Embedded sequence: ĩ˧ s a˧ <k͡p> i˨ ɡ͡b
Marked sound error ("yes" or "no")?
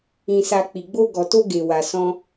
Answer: no